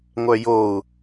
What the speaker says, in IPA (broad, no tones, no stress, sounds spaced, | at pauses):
ŋʷ œ j o u̯